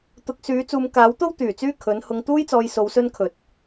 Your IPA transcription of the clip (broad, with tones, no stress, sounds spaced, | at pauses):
t̪ ʊ˨˥ k̚ s yː˨˥ t͡s uː˨˧ m k aː˨˥ w t̪ o˥ w t̪ yː˨˩ t͡s yː˥ kʰ ɵ˨˥ n h ʊ˧ ŋ t̪ uː˥ j t͡s ɔː˧ j s o˧ w s ɵ˥ n kʰ ɵ˨˥ t̚